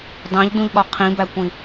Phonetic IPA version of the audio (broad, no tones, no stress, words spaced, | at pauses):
dɑ̃ʎdũʎɠɒ qʰĩbækʷĩ